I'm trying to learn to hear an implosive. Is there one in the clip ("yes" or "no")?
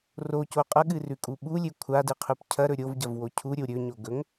yes